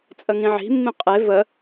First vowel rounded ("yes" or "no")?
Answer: no